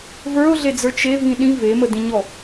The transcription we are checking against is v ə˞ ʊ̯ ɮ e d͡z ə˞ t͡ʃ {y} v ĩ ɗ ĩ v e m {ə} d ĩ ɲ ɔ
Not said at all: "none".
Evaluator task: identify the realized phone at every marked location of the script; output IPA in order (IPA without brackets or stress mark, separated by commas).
e, ə